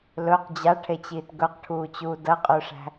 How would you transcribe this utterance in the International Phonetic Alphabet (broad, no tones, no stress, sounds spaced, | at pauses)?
l ɵ q d͡ʑ a ʈʰ e t͡ɕ iː t ɡ ɵ q ʈʰ uː t͡ɕ uː d ɐ qʼ ɵ ʂ æ̤